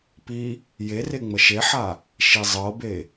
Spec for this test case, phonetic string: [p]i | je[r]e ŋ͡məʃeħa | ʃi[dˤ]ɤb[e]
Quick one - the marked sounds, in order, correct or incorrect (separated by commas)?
correct, correct, incorrect, correct